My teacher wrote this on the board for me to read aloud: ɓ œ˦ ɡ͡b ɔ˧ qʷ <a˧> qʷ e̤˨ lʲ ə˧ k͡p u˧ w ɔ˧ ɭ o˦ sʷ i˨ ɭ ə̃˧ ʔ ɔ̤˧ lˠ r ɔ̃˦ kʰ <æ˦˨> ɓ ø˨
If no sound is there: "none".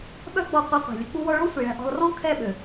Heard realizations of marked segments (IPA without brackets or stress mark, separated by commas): a˧, ɛ˦˨